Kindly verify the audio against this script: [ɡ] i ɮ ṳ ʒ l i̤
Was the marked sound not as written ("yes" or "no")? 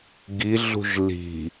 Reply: no